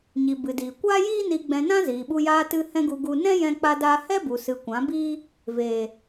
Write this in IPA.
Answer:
ɲ i˨ b ɨ˨ d iː˨ kʷ aː˦ j iː˦ n i˧ ɡ͡b ɛ̃˧ n ã˦ z iː˨ ɓ u˧ j aː˧ t ɨ˧ h ɛ̃˦ ɡ u˧ ɡ u˧ n ɛ̃˦ j ɛ̃˧ k͡p a˧ d aː˧ h ɛ˦ b u˨ s ɨ˨ kʷ ã˨˦ b iː˦ | v eː˨

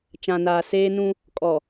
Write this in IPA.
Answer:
t͡ʃ ã˨ n aː˨ s eː˦ n ũ˦ | kʼ ɔ˨

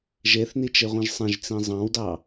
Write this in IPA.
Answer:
ʒ e θ n i t͡ʃ e ʁʷ ĩ ʒ sˤ ẽ ʒ t͡s ĩ zˤ ɑ̃ w d ɑ

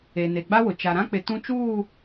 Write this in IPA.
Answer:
e˨ n e˨ ɡ͡b a˦ w ʊ˨ t͡ʃ a˨ ɾ ã˦ k͡p ɪ˨ t ũ˦ t͡ʃ uː˦˨

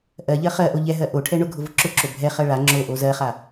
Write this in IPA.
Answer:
ʔ ɜ ʎ ɜ χ ɜ ʔ o ʎ ɛ ɦ ɜ ʔ o ʈʰ ɛ ɳ ʊ ɡʱ ʊ v ʊ ǁ ʊ ǁ o bʱ ɛ χ ɜ ɭ a ŋ͡ǁ o ʔ o z ɜ χ a

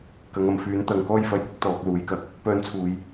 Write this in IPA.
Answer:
k ɐ˨ ŋ ɐ˨ m f yː˨˥ n t̪ ɐ˨ ŋ k ɔː˥ j f ɐ˧ j kʷ ɪ˥ k̚ t̪ ɔː˨ k̚ l uː˨˥ j k ɐ˨ k̚ | p œː˧ n t͡sʰ uː˨ j

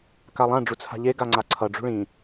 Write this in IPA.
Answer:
k a lˠ ã ɖ͡ʐ u t͡sʰ a̤ ʎ e ɡ a ŋ͡ǀ a ǀʰ ʌ ɖ͡ʐ ṳ ɭ ĩ

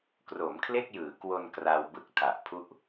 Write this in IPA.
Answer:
k r o˩˦ m kʰ l e˥˩ k̚ j ɯː˩˦ k w o˧ n k r a˧ w b ɯ˦˥ k̚ tʰ a˨˩ ʔ pʰ u˥˩ ʔ

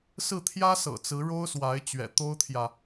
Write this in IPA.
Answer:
s ɹ̩˥˩ t̪ʰ j ä˥ s ɤ̰˨˩ t͡s ɹ̩˧˥ ɻ o˥ ʊ̯ s w a˧˥ ɪ̯ t͡ɕ ɥ ɛ̰˨˩ t̪ o˥ ʊ̯ t̪ʰ j ä˨

